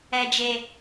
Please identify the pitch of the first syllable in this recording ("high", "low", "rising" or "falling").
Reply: low